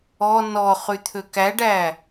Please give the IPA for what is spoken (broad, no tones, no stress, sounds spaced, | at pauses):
ɔ n ɔ χ y t̪ʰ ø k æ ɖ æ